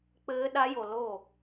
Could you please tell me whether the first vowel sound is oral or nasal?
oral